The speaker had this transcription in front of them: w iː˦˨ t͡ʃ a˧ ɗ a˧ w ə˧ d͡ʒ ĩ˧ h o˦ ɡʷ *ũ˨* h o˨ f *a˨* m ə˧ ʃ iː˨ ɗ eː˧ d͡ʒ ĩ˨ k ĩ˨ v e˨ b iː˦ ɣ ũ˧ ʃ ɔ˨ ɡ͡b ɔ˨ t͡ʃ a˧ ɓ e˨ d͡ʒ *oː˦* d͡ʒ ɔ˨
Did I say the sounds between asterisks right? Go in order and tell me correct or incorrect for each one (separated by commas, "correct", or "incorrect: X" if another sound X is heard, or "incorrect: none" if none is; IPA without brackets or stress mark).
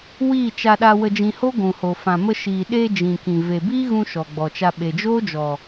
correct, incorrect: ã˨, correct